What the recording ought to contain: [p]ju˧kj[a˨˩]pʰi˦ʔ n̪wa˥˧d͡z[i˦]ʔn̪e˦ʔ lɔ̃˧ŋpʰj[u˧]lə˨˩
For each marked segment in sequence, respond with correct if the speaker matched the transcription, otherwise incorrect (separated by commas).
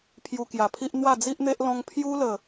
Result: incorrect, correct, correct, incorrect